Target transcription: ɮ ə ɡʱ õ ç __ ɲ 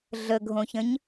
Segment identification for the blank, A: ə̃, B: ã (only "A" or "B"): A